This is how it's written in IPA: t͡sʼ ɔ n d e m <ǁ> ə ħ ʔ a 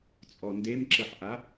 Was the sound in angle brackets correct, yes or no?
yes